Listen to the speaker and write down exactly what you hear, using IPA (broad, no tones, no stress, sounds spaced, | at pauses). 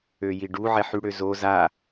ø j i ɖ u ʕ ɛ ħ y ɽ ø z o z a